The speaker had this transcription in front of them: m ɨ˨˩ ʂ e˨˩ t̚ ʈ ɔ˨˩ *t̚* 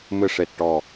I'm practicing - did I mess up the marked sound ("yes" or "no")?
yes